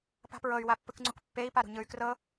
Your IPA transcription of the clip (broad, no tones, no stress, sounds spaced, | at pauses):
p a̤ p ɹ ɤ y̯ w a pː ɯ k ŋ͡ǀ u k pː e i̯ p a ɾ ṳ ɲ ɯ y̯ k r ɤ